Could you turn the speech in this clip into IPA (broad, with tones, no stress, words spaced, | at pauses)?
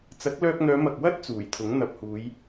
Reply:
t͡sɐ˨˥k̚ lœː˧k̚n̪œː˨˧ mɐ˨k̚wɐ˥t̚ t͡suː˨˩jt̪ʰʊ˨˥ŋ n̪ɐ˨p̚huː˨˧j